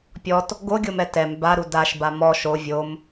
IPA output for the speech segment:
pʲ ɔ t | ɡ o ɡʲ o m ɛ t ɛ m b a ɾ u d a ʃ b a m ɔ ʃ o vʲ o m

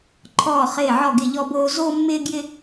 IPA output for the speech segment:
ǃʰ ɔː˥˧ χ ɪː˥˧ ʕ ɔ˥˧ ɡ ɪ˥˧ ʎ ɔ˥ b oː˥ z oː˥ mː ɪː˥ ɡ j ɪ˥

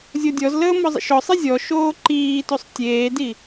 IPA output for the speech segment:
zʲ o dʲ ɔ z l əː m ɔ zˤ ḛ ʃ ɔ sˤ i zʲ ɔ ʃ oː ǃ iː t o sˤ tʲ eː d i

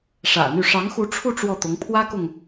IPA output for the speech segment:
ʂ ä̰˨˩ n̪ y˥˩ ʂ ɑ˧˥ ŋ x u˧˥ ʈ͡ʂʰ u˥˧ ʈ͡ʂ w ɔ˥˩ t̪ ʊ˧˥ ŋ pʰ w ä˥ k ʊ˨ ŋ

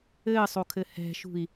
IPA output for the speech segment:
ɘː sˤ o kʰ ɘ h ɛ̤ ʃ ṳ i̯

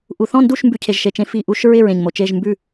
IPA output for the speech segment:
ʔ u˩ θ ɔ̃˥˩ n d u˥˩ ʃ m b ʉ˥˩ cʰ e˧ ʒ ʃ e˩ t͡ʃ ẽ˧ f i˥˩ ʔ u˧ ʃ ɹ ɪ˥˩ ɹ ẽ˩ ɲ m o˩ t͡ʃ e˥˩ ʒ m b ʉ˥˩

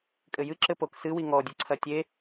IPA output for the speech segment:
kʼ ɘ j ɨ ǁ ɘ p o k s ɨ w i ŋ ɔ dʲ u ǀʰ ɐ tʲ e

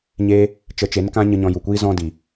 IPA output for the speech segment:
ɲ eː˧ | t͡ʃ ə˨˦ t͡ʃ e˨˦ n k ã˦ ɲ ə˧ ɲ ɔ̃˧ j u˨ kʷ iː˧ z ɔ̃˧ d i˨

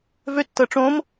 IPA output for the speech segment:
v ø tː ɤ ʈ͡ʂ õ m

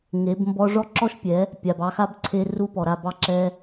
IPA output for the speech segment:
ŋ e˨˦ b m b ɔ˦ ʐ ɔ˦ ǁ ɔ˦ ʃ pʲ ɛ˨˦ | pʲ a˨ b ɑ˧ x a˦ b ǀʰ e˧ r u˦ p ɔ˨ ɾ a˦˨ b ɑ˦ ǁ ɛ˧

